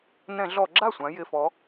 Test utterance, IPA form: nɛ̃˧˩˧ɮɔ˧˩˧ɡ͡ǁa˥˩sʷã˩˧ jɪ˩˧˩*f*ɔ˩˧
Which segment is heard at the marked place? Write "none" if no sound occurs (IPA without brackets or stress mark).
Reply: f